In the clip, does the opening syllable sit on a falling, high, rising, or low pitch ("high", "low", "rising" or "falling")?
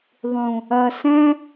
low